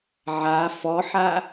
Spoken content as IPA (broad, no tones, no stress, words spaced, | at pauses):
ʕa fɔħa